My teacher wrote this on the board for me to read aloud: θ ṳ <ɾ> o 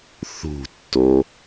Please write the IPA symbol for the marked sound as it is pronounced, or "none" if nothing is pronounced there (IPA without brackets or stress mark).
tː